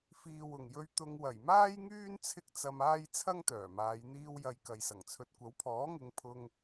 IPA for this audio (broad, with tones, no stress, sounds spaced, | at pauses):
f iː˨ w ʊ˨˩ ŋ j ɵ˧ ɥ t̪ ʊ˧ ŋ w ɐ˨˩ j m aː˥ j ŋ yː˥ n t͡sʰ ɪ˥ k̚ t͡s ɐ˧ m aː˥ j t͡sʰ ɐ˥ ŋ t̪ œː˨˩ m aː˨˧ j n̪ iː˧ w j ɐ˨ j k ɐ˨ j s ɐ˨˩ ŋ t͡sʰ ɵ˧ t̚ kʷ ɐ˨˥ w pʰ ɔː˨˥ ŋ ɪ˨˧ ŋ pʰ ʊ˧ ŋ